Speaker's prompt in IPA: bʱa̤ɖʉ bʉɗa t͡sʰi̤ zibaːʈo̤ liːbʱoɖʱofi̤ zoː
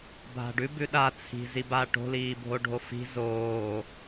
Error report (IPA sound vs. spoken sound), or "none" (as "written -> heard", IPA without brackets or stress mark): none